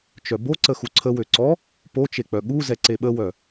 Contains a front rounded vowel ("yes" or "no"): yes